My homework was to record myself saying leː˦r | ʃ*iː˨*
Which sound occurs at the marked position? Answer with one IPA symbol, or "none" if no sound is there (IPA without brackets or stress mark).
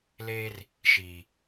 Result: iː˨